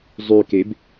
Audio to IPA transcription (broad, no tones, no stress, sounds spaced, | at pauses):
zˤ y k e b